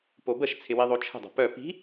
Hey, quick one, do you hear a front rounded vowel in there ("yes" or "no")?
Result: yes